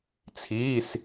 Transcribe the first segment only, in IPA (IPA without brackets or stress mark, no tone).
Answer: t͡sʰ